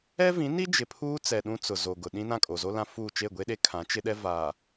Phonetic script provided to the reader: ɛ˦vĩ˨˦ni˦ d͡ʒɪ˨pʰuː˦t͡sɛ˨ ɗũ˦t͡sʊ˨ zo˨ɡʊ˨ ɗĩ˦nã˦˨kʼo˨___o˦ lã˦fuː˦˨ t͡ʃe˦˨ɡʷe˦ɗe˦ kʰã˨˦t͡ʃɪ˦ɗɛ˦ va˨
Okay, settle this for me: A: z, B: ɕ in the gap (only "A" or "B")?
A